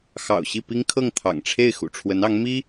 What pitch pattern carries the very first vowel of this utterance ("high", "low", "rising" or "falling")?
low